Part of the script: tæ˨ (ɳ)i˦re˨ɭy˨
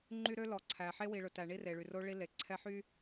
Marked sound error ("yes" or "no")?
no